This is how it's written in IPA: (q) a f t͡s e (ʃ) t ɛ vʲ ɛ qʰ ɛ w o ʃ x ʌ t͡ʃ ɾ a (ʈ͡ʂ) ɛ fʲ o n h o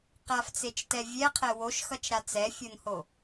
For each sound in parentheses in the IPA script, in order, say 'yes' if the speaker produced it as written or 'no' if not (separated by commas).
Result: yes, no, no